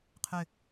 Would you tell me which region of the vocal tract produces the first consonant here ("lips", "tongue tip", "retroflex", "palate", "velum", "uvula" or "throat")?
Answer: uvula